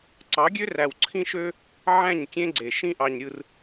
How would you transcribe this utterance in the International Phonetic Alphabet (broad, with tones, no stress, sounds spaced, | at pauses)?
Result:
ǀ ɑ˨˦ ɡʲ ø˦ r æ˨ w ǀʰ ĩ˦ ʃ ø˦ | ʕ æ̃˦˨ ɲ kʲ ẽ˦ ɡ͡ǀ e˨ ʃ ĩ˦ ʔ ɑ˨ ɲ ɾʲ ɯ˨ r